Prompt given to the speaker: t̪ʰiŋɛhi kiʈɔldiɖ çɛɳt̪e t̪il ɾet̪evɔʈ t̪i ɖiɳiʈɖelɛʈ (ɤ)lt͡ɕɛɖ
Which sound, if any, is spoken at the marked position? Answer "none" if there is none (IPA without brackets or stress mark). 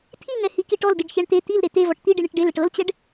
ɤ